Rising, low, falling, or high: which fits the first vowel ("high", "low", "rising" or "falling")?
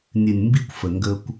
low